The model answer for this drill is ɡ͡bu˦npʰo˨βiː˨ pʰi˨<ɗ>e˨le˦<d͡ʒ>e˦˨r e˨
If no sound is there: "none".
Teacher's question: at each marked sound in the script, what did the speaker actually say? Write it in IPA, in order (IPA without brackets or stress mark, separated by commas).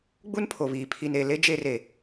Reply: n, d͡ʒ